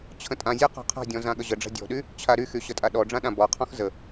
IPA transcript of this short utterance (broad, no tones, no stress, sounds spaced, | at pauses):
t͡ɕʰ ə̃ tʼ ã zʲ a q ɔ̤ qʰ a̤ dʲ ɔ̃ z ã ɠ ə ʑ ə ɖ͡ʐ a̤ dʲ ɔ̤ ɗ y | t͡ɕʰ a ɾ y x y ɕ ə tʼ a ɗ ɔ ɖ͡ʐ ã ɗ ã b ɔ qʰ ɔ̃ x z ə